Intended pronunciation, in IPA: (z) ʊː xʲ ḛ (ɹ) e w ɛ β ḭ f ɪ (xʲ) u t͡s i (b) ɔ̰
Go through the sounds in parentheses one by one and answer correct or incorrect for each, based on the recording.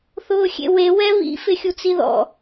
incorrect: θ, incorrect: w, correct, incorrect: ð

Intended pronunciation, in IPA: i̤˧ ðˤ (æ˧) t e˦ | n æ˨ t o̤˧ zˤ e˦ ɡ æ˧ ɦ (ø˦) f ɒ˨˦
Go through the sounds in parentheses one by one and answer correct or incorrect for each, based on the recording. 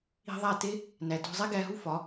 incorrect: æ˦˨, incorrect: u˦

